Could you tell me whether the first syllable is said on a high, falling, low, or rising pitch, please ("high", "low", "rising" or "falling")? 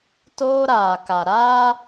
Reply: high